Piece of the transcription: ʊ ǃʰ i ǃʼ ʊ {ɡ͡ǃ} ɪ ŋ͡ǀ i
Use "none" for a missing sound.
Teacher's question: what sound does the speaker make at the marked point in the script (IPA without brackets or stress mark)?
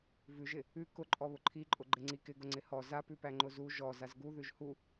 ɡ͡ǃ